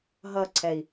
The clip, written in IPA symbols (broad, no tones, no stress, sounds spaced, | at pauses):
ɦ ʌ ǀʰ ɛ i̯